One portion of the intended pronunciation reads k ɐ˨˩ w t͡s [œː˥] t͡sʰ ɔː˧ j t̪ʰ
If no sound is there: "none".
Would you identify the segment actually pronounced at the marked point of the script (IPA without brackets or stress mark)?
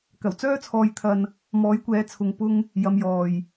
œː˥